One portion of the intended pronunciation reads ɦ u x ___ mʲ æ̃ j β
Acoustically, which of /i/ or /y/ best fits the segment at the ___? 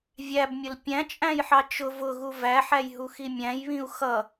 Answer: i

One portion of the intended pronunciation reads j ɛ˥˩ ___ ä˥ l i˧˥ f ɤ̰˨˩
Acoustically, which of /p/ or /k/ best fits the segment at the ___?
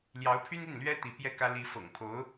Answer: k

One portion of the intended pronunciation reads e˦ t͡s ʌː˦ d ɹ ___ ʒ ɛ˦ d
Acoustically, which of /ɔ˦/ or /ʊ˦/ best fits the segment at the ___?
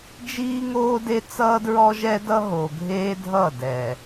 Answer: ɔ˦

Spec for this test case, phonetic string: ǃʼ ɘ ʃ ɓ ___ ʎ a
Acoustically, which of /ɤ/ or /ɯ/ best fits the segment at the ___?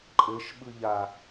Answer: ɯ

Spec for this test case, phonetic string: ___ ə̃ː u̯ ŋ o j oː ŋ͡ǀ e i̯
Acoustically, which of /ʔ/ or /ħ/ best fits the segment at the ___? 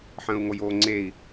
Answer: ħ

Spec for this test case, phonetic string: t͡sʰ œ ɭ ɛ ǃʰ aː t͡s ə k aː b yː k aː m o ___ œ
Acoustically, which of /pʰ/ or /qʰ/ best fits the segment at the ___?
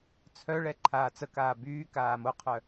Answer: qʰ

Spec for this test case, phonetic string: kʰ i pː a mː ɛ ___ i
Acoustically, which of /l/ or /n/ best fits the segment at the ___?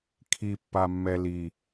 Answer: l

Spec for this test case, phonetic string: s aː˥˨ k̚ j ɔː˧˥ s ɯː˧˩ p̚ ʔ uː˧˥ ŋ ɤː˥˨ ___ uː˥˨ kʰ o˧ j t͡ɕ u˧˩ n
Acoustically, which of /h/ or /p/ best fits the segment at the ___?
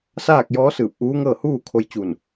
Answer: h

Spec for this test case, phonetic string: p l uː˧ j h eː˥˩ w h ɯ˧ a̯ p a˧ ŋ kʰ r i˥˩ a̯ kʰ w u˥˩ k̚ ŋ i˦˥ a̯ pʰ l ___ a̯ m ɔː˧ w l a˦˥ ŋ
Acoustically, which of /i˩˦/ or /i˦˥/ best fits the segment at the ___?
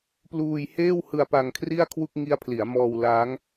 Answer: i˩˦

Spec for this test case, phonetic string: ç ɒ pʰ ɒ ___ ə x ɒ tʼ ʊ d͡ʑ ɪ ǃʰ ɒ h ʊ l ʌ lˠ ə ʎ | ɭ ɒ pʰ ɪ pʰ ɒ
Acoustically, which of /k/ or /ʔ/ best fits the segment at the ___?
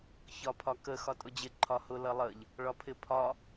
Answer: k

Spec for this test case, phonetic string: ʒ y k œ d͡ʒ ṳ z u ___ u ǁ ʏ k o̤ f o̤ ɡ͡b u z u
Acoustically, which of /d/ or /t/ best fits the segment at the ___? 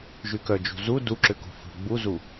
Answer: d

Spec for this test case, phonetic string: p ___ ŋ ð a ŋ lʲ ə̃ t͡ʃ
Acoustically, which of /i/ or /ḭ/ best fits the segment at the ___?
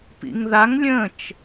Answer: ḭ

